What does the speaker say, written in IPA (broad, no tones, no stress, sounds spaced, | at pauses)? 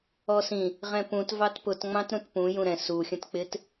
ɔ s ĩ | ʁ ɛ̃ p ũ t v ɑ t p ʊ t ŋ͡m ɑ̃ t ɾ ũ t p ũ j ũ ɾ ɛ̃ s u xʲ ə̃ t k͡p ɪ t